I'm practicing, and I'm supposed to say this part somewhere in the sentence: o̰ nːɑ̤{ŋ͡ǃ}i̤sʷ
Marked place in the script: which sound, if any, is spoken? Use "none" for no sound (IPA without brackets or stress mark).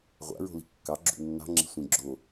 ŋ͡ǁ